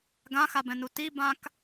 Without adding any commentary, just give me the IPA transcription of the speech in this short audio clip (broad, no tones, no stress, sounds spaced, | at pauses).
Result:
ɡ ã x a b ɛ̃ n u t i b ã k